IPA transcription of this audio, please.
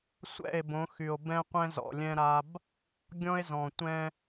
sʷ ɛ̰˦˨ e̯ b õ˨˦ x y˨ o̯ b ɛ̃˦ qʷ ɛ̃˦ z ɔ̰˨ lʲ ɛ̃˦ ɾ a˦ b | ɡʲ ɔ̃˦ e̯ z ɔ̃˨ tʷ ɛ̃˦

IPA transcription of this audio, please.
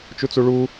t͡ʃ u t͡s u ɭ u

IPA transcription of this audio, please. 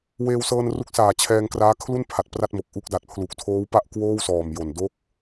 w eː˧ w s ɤː˧ n r u˦˥ k̚ s aː˨˩ t͡ɕʰ ɛː˧ ŋ k r aː˦˥ kʰ l u˥˩ n pʰ a˨˩ t̚ p r a˥˩ t̚ m o˨˩ k̚ ʔ u˦˥ k̚ d a˨˩ t̚ pʰ l u˨˩ k̚ tʰ oː˦˥ w p a˥˩ ʔ k w oː˥˩ w s ɔː˨˩ m j o˨˩ n d o˦˥ k̚

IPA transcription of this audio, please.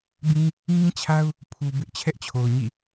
b ĩ˦ | ŋ ĩ˦ t͡ɕʰ a˦ ʊ̯ | pʰ u˨ b ɪ˦ ʔ t͡ɕʰ ɛ˦ ʔ t͡ɕʰ o˨ ʊ̯ ɲ ḭ˦˨

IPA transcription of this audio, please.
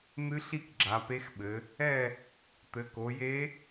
n̪ ɨ˧˥ ɬ i˥˨ k ɡ͡ǁ a˩˧ p e˧˥ x ɓ ɘ˩˧ | ɛ˥˨ | t̪ ɘ˩˧ k o˩˧ j e˧˥

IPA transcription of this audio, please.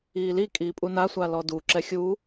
iː l i kʼ iː pʼ u n a sʷ a l ɔ d u ǁ ɛ xʲ uː

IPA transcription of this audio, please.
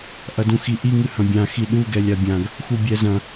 ʔ ɐ d ũ x i ʔ i ŋ ɨ h ɐ̃ bʲ ã x i ɗ u ɡ ɛ lʲ a bʲ ã ɡ | x u bʲ ɛ z ɐ̃

